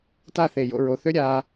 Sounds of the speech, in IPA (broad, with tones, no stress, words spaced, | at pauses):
ta˥˧θe˧˩jo̰˥˧ ɹo˩˧θø˥ ɾʲa˧